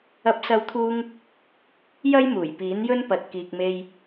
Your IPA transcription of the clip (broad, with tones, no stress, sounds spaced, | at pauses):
ɐ˧ p̚ s ɐ˧ w t̪ʰ uː˧ ŋ | j ɐ˥ j m uː˨˩ j p iː˨˥ n j ɵ˥ n p ɐ˨ t̚ k iː˨ k̚ m e˧ j